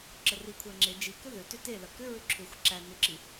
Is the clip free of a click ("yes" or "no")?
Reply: no